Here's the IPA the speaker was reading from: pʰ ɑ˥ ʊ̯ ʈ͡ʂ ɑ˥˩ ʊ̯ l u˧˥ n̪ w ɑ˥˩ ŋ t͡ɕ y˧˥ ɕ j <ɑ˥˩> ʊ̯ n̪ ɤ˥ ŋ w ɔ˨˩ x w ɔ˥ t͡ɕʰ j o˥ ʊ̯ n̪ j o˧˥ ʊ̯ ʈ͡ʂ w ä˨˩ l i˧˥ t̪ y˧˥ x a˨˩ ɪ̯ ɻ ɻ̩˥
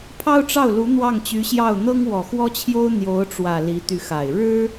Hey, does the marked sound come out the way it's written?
yes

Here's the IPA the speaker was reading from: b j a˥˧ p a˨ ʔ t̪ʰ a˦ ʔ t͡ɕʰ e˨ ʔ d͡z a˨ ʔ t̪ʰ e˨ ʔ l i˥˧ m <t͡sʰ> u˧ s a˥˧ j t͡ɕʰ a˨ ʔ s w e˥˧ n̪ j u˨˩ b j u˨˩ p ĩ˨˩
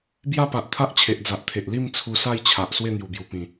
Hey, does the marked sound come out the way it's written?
yes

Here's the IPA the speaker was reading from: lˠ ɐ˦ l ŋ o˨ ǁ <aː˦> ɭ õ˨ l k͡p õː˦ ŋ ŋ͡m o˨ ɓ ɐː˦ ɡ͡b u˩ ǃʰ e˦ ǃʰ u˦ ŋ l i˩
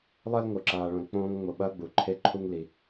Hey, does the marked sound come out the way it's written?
no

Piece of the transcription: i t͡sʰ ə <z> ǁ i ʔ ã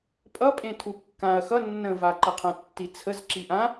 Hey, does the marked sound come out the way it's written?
yes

